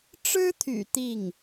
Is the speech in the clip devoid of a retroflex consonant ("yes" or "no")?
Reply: no